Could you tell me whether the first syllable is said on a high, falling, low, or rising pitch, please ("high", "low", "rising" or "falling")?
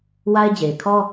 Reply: high